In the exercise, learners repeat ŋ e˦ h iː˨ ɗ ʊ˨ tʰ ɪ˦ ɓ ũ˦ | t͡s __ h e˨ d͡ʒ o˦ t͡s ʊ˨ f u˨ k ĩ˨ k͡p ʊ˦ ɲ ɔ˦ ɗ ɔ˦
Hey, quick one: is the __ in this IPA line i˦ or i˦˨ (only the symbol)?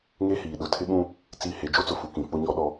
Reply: i˦˨